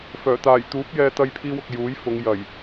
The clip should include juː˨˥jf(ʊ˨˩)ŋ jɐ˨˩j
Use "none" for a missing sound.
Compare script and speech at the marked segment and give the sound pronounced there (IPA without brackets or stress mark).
ʊ˨˧